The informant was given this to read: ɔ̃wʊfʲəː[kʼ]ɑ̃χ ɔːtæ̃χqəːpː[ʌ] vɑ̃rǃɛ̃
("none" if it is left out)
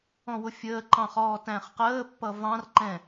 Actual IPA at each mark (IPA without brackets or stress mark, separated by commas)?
ǃ, ʌ